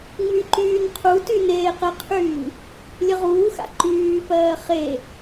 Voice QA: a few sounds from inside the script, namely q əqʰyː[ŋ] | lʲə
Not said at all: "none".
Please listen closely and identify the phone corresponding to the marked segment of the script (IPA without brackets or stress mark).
ŋ